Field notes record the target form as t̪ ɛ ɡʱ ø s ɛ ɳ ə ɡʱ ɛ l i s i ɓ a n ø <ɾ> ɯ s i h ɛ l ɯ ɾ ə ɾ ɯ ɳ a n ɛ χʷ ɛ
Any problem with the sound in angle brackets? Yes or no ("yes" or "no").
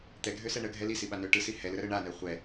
yes